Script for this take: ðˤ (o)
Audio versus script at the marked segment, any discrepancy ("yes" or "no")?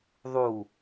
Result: yes